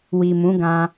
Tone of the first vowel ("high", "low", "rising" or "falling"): low